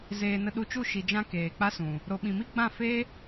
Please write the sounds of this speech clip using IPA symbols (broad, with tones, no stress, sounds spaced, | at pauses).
z eː˨ n ə˧ ɗ u˧ t͡ʃ u˦˨ ʃ i˧ d͡ʒ ã˦ k eː˨ k͡p a˦ s ũ˨ | ɾ o˨ ɓ ĩ˨ m i˦ ɡ͡b ã˦˨ f e˦